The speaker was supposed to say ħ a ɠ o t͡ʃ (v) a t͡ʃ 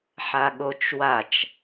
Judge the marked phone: incorrect: w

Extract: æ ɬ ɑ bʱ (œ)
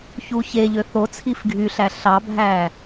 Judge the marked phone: incorrect: æ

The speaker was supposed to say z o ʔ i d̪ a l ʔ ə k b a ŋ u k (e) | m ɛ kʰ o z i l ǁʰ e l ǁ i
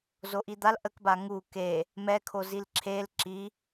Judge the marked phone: correct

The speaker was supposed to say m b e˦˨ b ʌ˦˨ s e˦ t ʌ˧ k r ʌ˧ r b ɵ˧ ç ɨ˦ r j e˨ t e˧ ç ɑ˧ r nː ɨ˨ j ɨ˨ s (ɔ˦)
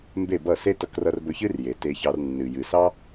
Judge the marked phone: incorrect: ɑ˦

